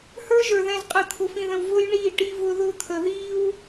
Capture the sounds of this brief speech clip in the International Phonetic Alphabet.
h ə˞˦ ʒ ə˞˨ ð ɛ̃˨ z qʼ əː˨ t̪ʰ ʊ˨ f ĩ˨ ð ə̃˨ w v ʊ˦ j ɳ iː˦˨ ʈ i˦ v ʊ˦ ð ʊ˦ t̪ʰ ə˨ ð iː˦ w

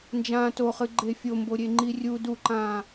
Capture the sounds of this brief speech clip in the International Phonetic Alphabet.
n d͡ʒ ãː t o χ ɨ ɡ͡ǃ e fʲ o m b o ɾʲ e ŋ͡ǃ i rʲ u d u ǃ ãː

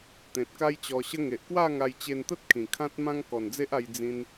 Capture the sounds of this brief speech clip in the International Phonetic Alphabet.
t̪ ẽ˨ t̚ k a˦ j t͡ɕ ɔ˧ ɕ ə˦ ŋ e˨ ʔ k w a˥˧ ŋ a˧ j t͡ɕ e˧ n t̪ ə˦ t̚ kʰ ĩ˨˩ kʰ ã˦ t̚ m ã˦ ŋ k ɔ˨˩ n d͡z e˦ ʔ a˧ j d͡z ĩ˧ n

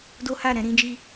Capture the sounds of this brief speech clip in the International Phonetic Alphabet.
d o˦ h a˦˨ ɾ ɛ̃˧ ɾ ĩ˦ d͡ʒ i˦

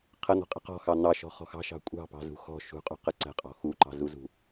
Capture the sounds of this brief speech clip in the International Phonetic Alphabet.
qʰ ə n̪ ɔ̤ qʼ ə̤ q ɔ̤ x ɑ n̪ ɑ ʃ ɔ̤ χ ɔ̤ x ɑ̤ ʃ ɑ̤ kʷʼ ɑ̤ p ɑ̤ z ṳ x ɔ̤ ʃ ṳ qʼ ṳ q ə ǀ ə̤ qʼ ɔ̤ x u ǃ ɑ̤ z u z ṳ

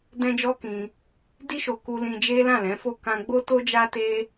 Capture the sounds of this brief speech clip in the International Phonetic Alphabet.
d ɛ̃˦ d͡ʒ ɔ˦ k ĩ˧ | d i˧ ʃ o˨ k u˧ l ĩ˧ d͡ʒ e˦ l ã˦˨ l ɛ̃˨˦ f o˦˨ k ã˧ ɡ͡b o˦ t o˦ d͡ʒ a˦ t e˦

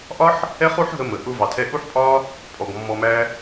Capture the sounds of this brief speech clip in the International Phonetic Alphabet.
ʔ ɒ˦ ħ | ɛ˦ χ u˦ ħ ɦ ə˧ m ə˨ ʔ ʊ˧ v ɑ˨ tʰ ɛ˧ ʔ u˦ ħ pʼ ɒ˦ | pʼ ɔ˨ ɡ mː ɔ˧ m æ˦

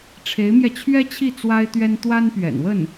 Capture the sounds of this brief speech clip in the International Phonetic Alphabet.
ʈ͡ʂʰ e˧˥ ɪ̯ m j ɛ˧ t͡ɕʰ ɥ ɛ˥ t͡ɕʰ i˥˩ t͡s w a˥ ɪ̯ t̪ ɥ ɛ˥ n t̪ w a˥ n p ɥ ɛ̰˨˩ n w ə˥˩ n

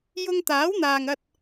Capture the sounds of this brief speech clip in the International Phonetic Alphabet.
j ʊ˧ ŋ t̪ aː˨˥ w n̪ aː˨ ŋ ɐ˧ t̚

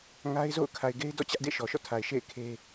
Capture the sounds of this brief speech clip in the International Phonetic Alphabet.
ŋ a˦ ɪ̯ z o̰˦˨ ʊ̯ kʰ a˨ ɪ̯ ɡ e˦ ɪ̯ d ɔ̰˦˨ t͡ɕ ä˦ ʔ d ḛ˦˨ ʃ ɔ˨ ʃ ɔ̰˦˨ tʰ a˨ ɪ̯ ʃ ḛ˦˨ ɪ̯ kʰ e˦

